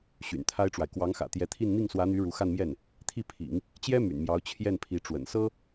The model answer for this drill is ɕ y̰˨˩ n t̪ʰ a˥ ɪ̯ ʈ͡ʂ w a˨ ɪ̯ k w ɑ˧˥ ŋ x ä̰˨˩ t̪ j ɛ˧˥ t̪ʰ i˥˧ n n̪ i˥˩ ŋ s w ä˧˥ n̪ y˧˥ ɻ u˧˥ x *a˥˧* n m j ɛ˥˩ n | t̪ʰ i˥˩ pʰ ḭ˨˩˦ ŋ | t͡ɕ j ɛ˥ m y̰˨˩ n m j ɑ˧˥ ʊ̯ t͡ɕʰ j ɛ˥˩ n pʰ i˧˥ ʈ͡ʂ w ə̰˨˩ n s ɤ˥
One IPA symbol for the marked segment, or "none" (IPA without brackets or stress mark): a˥˧